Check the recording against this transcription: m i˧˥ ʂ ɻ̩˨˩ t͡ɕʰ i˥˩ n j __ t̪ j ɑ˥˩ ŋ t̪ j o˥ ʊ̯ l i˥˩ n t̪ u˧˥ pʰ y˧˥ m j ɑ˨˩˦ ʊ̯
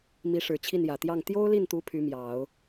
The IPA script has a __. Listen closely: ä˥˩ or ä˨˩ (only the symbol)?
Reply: ä˨˩